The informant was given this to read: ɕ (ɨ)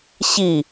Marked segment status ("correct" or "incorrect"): incorrect